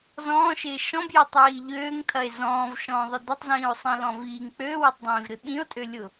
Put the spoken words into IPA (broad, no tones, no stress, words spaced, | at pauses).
zɔ̃ːʃɪː ʃɔ̃bjatˤwiː ʎøːŋt̪ʰɐe̯ zɔ̃ːvʃɔ̃ːðˤɪ d̪ɪtˤzĩːo̯sˤĩlɔ̃v iːŋ k͡pøːwɐtˤdˤĩːvɾɪ ɓĩo̯tʼølʲʊ